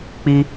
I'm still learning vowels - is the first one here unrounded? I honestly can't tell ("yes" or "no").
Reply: yes